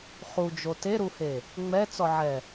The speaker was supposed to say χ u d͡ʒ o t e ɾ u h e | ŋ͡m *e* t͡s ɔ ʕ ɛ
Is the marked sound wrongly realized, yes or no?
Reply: yes